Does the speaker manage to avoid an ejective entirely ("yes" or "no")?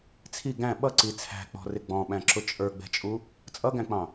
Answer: no